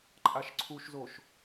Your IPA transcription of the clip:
ǃʼ a ʃ ǀʰ u ʃ z o ʃ

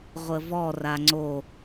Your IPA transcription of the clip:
ʁʷ ə v ɔ r a ŋ͡ǀ o

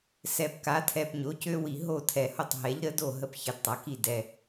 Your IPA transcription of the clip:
s ɛ˨˩ p k a˩˥ tʰ ɛ˨˩ p ɲ o˩˥ c ø˦˥ w i˨˩ ɦ o˥˩ tʰ ɛ˨˩ h o˥˩ tˤ ɦ ɛ˩˥ ʎ ɾ ə˦˥ d o˥˩ ɦ ə˥˩ p ç ə˨˩ d tˤ a˩˥ k i˥˩ d ɛ˨˩

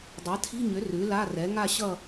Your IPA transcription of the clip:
dˤ a˩˥ tʰ i̤˧˥˧ ɲ ʏ˩˥ r ʉ˩˥ l a˧˥˧ r ɛ˩˥ ŋ a˥˧ ɕ ʌ˥˧

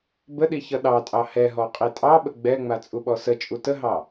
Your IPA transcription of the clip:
b ə ɗ i ç ʌ ɗ ɑ tʼ ɑ h ɛ ɦ ɔ qʼ i tʼ ɑ ɓ ə ɡ͡b ɛ ŋ͡m a t͡sʼ u ɓ ɔ s ə t͡ʃʼ u t ə ɦ ɑ

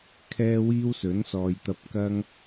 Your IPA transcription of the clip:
kʰ ɛː˥ w iː˥ w s ɵ˨˥ n s ɔː˨ j t̪ ɐ˧ p̚ k ɐ˥ ŋ

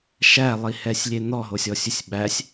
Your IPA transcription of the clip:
ʃ æ lˠ i h ɛ sʲ lʲ e n̪ ɔ ɦ o sʲ ɔ sʲ ɵ sʲ ɓ æ sʲ

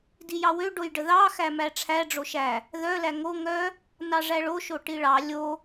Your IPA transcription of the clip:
d i j ɑ w ø ɖ o j ɖ ə ð ɑ x æ m æ ʈ͡ʂʰ æ ɖ͡ʐ o ʃ æ | ð œ l æ ŋ o ŋ œ | n ɑ ʐ æ ɭ o ʃ o ʈ i ɭ ɑ lʲ o

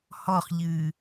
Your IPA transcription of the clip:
h ɔ χ ʎ ɨː

